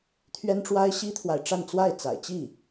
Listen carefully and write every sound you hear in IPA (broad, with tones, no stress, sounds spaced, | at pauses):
t̪ʰ ɥ ɛ˥ n ʈ͡ʂ w a˥ ɪ̯ ɕ i˥ t̪ʰ w a˨ ɪ̯ ʈ͡ʂ a˥˧ n t͡s w a˥˩ ɪ̯ t͡s a̰˨˩ ɪ̯ t͡ɕ i˥˩